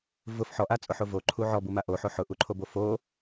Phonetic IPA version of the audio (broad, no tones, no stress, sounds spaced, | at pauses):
v ʊ f ħ ɔ ʔ a t͡sʼ ʊ ħ o v o ǃʰ u ʕ ɔ b u m a ʔ o ħ o ħ ʊ ʔ u ǃʰ o b o f o